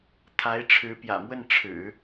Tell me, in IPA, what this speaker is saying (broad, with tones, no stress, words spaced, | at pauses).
t̪ʰa˧˥ɪ̯ʈ͡ʂʰɻ̩˧˥pjä̰˨˩mwə˥˩n ʈ͡ʂʰɻ̩˨˩˦